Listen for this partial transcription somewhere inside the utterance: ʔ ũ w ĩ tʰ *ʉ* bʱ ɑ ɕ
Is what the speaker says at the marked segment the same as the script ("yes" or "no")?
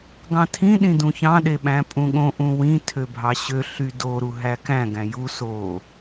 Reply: no